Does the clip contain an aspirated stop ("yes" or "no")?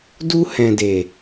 no